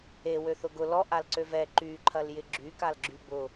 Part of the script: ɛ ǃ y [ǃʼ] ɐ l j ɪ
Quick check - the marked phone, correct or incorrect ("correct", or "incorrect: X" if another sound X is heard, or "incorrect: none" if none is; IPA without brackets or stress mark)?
incorrect: ǃʰ